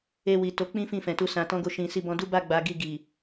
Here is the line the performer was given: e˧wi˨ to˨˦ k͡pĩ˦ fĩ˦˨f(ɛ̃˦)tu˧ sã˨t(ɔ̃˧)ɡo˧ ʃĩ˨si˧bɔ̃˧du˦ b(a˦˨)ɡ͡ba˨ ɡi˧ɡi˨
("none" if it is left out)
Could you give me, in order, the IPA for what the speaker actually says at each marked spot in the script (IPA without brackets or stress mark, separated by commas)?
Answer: ɛ̃˨, ɔ̃˧, a˦˨